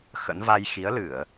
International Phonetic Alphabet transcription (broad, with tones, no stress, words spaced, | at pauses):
xə̰˧˥n va˧jxi˨˦ə̯ lɨ˧˩˨ə̯